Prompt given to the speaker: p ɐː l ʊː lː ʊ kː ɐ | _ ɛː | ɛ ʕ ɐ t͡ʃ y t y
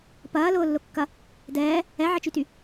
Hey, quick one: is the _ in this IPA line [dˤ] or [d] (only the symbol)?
d